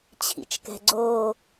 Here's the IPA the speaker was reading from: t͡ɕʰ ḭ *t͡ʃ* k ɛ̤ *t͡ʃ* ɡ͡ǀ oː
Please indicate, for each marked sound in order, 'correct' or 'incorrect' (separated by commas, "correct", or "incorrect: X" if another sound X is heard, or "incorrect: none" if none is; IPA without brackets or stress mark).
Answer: correct, incorrect: none